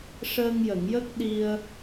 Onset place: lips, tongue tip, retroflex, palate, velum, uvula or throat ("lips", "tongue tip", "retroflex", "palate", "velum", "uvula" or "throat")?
retroflex